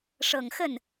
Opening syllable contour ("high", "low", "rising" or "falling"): low